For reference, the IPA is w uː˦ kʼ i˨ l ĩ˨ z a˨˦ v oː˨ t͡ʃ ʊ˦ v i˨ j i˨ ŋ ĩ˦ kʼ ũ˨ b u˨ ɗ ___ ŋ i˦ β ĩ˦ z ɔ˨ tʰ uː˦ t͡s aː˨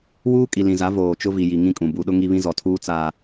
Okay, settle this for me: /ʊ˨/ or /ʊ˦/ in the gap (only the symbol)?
ʊ˦